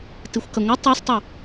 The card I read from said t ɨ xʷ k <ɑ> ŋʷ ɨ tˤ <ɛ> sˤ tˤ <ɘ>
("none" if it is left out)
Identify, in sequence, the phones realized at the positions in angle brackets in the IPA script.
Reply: ɐ, ɛ, ɘ

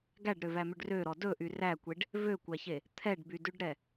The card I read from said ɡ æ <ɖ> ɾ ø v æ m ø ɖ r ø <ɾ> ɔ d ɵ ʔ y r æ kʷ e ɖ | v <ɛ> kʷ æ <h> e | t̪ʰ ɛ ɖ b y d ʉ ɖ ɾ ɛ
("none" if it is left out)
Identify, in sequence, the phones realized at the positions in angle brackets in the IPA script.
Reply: ɖ, ɾ, ø, ç

